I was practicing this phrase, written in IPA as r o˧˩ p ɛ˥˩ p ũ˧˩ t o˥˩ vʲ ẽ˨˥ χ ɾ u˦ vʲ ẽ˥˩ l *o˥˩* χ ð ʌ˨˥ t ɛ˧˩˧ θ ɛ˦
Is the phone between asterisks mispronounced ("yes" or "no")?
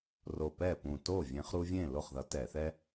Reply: no